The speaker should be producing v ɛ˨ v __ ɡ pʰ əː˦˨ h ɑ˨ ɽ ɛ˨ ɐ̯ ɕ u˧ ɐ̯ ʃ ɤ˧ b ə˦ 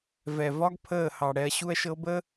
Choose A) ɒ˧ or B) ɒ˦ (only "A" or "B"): B